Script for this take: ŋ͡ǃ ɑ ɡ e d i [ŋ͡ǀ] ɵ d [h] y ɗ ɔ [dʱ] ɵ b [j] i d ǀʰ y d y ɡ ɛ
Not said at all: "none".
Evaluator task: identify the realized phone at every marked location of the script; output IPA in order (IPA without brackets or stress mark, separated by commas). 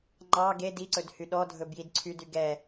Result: ǀ, h, dʱ, j